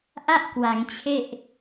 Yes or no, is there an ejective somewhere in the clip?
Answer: no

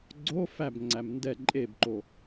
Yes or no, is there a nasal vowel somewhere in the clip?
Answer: no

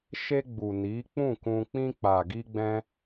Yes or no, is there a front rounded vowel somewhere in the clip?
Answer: no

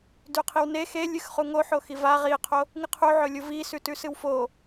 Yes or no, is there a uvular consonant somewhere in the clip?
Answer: yes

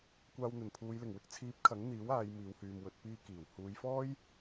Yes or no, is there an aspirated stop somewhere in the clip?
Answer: yes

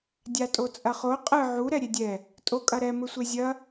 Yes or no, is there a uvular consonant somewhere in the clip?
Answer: yes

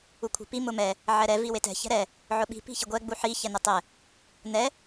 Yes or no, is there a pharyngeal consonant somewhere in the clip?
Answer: yes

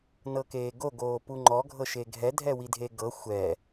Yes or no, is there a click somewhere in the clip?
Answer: yes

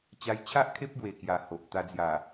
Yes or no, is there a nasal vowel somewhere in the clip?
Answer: no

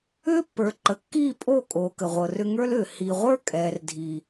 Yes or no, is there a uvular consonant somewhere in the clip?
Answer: yes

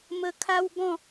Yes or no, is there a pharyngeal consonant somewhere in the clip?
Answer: no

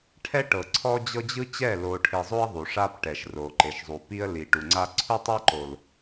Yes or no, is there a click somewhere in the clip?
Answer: yes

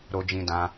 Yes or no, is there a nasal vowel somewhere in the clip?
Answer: yes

